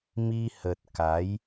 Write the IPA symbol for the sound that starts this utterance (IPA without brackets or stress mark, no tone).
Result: m